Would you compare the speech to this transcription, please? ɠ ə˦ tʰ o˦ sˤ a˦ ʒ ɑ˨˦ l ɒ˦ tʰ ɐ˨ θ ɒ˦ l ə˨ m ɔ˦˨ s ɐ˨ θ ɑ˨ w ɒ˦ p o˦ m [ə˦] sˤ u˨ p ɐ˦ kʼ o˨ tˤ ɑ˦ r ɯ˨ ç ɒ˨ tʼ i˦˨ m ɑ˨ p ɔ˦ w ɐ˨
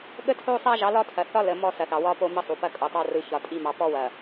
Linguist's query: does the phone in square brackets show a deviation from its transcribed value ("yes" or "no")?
no